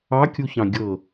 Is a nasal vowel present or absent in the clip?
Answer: present